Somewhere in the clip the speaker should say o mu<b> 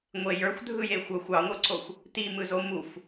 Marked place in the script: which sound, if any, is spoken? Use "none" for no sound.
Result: f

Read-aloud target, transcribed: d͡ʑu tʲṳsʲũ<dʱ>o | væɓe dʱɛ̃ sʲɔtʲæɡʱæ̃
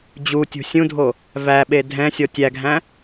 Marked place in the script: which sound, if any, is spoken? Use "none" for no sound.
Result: dʱ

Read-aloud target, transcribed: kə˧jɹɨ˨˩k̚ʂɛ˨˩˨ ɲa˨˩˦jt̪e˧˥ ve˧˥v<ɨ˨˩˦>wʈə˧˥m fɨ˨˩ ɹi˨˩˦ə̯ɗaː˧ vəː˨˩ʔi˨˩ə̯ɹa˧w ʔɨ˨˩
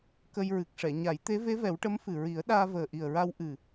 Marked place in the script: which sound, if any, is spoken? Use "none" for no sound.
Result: ɛ˨˩˦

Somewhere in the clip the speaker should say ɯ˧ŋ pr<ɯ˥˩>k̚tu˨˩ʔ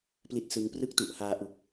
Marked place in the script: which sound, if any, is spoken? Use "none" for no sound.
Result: ɯ˥˩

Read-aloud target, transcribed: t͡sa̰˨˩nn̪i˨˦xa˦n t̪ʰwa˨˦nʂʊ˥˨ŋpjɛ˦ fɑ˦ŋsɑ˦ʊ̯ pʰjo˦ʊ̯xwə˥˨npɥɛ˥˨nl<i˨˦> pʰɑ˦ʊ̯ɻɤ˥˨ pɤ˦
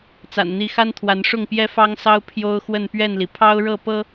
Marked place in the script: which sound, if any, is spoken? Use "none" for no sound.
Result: i˩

